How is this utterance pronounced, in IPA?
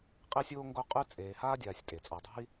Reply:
qʼ e˦ sʲ oː˦ ŋ ɡ o˦ qʼ ʉ˦ t͡sʼ eː˨ h aː˥ dʲ aː˨ sʲ tʼ e˩ t͡sʼ a˨ dˤ ṳ˦ i̯

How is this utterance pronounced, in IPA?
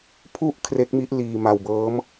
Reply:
pʰ u˦˥ ʔ kʰ r e˦˥ k̚ m i˦˥ ʔ l iː˧ m a˧ w b ɤː˦˥ m

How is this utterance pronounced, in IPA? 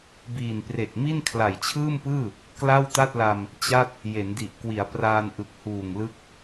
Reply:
b iː˨˩ n p r e˨˩ k̚ m i˥˩ n kʰ l a˨˩ j t͡ɕʰ ɯː˥˩ m p ɯː˥˩ | k l a˥˩ w t a˥˩ t̚ l a˧ m | t͡ɕ a˥˩ t̚ | j e˩˦ n d i˨˩ ʔ k w i˩˦ a̯ p r aː˧ n ʔ ɯ˨˩ k̚ h uː˨˩ ŋ l ɯ˦˥ k̚

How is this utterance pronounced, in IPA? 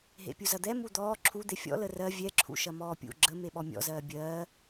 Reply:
ɦ ḛ pʲ u z ɐ d̪ ɛ m u d̪ ɔː ǁʰ u d̪ e fʲ ɔ̰ l ə r ɜ vʲ ɛ ǁʰ ṵ ʃ ɐ m ɔː pʲ ṵ ɡ͡ǁ ə m e ɓ ɔ mʲ ɔ̰ z ɜː bʲ ɜː

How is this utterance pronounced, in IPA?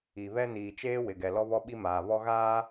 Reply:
i˨ β ɛ˦ n iː˨ t͡ʃ eː˦ w ɪ˨ ɡ ɛ˨ l ɔ˦ β ɔ˦ ɓ i˦ m aː˨ β ɔ˦ ɣ aː˦

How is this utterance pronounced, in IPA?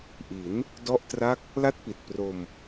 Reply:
ʔ i˩˦ n | d ɔ˥˩ ʔ t r a˥˩ k̚ | l a˥˩ t̚ p i˨˩ t̚ p r o˧ m

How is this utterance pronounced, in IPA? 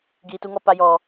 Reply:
ɡ iː˨ t u˧ ŋ ɔ˦˨ p a˧ j ɔ˨

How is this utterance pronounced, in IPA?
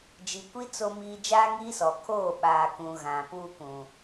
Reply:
d͡ʒ i˨ kʷ i˦ t͡s o˦ m iː˦ d͡ʒ aː˦ ŋ iː˦ s ɔ˨ kʰ oː˦˨ ɓ aː˨ k ũ˨ ɣ ã˨ p uː˦ k ũ˨

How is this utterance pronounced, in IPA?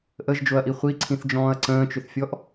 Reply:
ʔ ə ʒ d͡ʒ o ɐ̯ ʔ i χʷ i ǀʰ ĩ θ d͡ʒ ɔ̃ː ɐ̯ ǀ ə̃ː t͡ʃ ʏ θ fʲ ɔ ʔ

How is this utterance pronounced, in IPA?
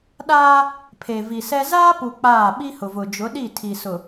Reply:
ɗ aː˦ | pʰ e˨ v i˨ s ɛ˦ z aː˦ p u˨ k͡p aː˦˨ ɓ i˦ h ʊ˨ v ʊ˨ d͡ʒ ʊ˨˦ ɗ i˦˨ tʰ i˨ s ʊ˨

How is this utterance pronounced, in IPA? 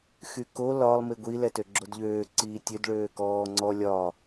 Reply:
x y k o l ɒ lˠ m i ɡʷ i l ɛ t ø ɡ͡ǁ o d ʎ øː ǀ iː tʲ ø d ɭ øː k ɔː ŋ͡ǀ ɔ lʲ ɒ

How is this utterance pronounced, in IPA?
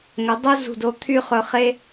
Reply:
ŋ ɵ˩˧ dˤ o˥ z ṳ˧˩ d o˧ t̪ʰ y˥˧ χ ɵ˧ χ e˥

